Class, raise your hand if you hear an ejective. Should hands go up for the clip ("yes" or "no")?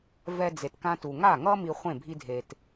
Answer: no